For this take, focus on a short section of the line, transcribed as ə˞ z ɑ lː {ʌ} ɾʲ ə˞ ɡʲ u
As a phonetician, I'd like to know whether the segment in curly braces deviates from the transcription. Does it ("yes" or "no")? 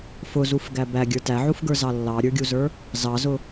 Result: yes